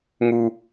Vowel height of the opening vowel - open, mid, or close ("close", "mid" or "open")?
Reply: close